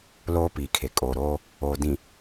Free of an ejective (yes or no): no